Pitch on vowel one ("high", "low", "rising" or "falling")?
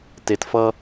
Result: low